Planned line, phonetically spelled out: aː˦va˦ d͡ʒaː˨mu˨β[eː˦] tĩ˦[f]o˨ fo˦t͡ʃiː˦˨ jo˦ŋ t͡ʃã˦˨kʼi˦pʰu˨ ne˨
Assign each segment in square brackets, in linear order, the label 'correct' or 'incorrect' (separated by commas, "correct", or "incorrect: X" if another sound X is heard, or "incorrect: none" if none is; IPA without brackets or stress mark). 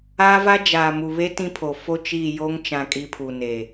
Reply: incorrect: e˦, incorrect: pʰ